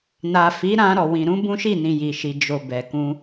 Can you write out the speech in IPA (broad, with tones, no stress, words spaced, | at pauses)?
na˨ fi˨˦ ɾã˧ ɾɔ˨wĩ˨ɾũ˨˦ bũ˦ʃi˦˨nĩ˨ ji˨ʃi˨ d͡ʒo˨ bɛ˨kũ˧